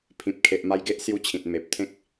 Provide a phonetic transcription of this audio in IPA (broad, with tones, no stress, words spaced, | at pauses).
pʰĩ˨p̚kʰe˨ʔma˧jɡe˦ʔ sju˦t͡ɕʰĩ˨t̚ me˨p̚ t̪ʰẽ˦k̚